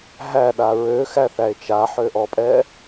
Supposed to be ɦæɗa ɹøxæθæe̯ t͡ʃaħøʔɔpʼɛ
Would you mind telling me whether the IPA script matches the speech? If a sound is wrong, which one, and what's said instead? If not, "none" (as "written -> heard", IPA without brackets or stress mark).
none